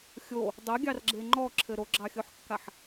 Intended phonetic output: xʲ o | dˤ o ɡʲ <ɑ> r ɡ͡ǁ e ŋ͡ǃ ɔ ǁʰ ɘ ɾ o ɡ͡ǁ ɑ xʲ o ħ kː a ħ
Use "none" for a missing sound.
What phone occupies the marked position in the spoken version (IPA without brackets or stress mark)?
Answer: ɑ